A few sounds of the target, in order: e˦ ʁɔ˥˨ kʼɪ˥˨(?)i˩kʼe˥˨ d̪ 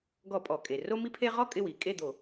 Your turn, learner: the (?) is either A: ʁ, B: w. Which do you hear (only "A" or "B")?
B